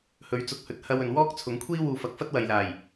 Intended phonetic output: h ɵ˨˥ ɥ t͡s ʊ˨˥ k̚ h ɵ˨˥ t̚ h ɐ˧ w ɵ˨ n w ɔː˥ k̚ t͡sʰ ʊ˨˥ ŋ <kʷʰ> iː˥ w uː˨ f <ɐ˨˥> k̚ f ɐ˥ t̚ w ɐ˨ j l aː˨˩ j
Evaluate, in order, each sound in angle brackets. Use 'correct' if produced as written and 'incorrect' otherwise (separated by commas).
correct, correct